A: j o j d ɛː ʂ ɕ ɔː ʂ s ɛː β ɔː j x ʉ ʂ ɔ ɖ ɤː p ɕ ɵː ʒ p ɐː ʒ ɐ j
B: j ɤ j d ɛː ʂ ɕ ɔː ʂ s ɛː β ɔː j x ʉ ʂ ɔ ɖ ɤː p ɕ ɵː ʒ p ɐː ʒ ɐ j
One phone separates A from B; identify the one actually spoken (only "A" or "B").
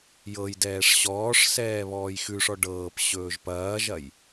B